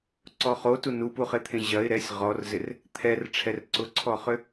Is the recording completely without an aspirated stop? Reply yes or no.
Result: no